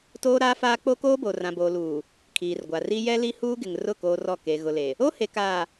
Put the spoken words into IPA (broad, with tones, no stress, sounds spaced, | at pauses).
t oː˦ ɾ aː˦ f aː˦ k͡p o˦ k oː˦ b o˨ r ã˨ b oː˨ l uː˨ | kʰ iː˨ r ɡʷ a˨ r i˦ j ɛ˦ l i˦ h uː˦ ɡ ɪ˨ ŋ r ʊ˦˨ k oː˦ r ɔ˦˨ k e˨ ɣ ʊ˨ l e˨ | o˦ h e˨ k aː˨